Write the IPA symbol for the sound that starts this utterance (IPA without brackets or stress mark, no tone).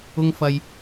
ʊ